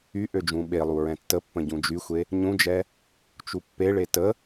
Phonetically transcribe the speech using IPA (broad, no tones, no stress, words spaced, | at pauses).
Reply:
y ʔød͡ʒũɓelˠu ɹɛ̃tːəpːə̃ ɟũd͡ʒyxʷe | ɲũd͡ʒɛ | t͡ʃupːeɭe tə